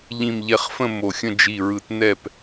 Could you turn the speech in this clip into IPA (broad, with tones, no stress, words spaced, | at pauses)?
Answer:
ʎĩ˧˩mʎɛ˧˩χfə̃˥˨ mo˧˩xʲə̃˥˨ d͡ʒi˧˩ɹɯ˧˩t nɛ˥˨p